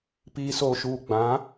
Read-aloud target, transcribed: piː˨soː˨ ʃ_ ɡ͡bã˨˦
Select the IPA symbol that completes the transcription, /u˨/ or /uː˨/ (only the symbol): uː˨